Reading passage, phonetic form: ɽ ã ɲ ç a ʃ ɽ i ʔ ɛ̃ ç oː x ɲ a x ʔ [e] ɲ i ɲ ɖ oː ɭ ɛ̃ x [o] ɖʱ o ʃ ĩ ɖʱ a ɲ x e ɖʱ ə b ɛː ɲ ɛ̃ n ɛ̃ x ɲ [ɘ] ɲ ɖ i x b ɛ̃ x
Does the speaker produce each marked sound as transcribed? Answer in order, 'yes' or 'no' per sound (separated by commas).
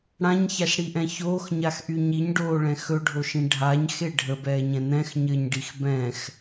no, no, yes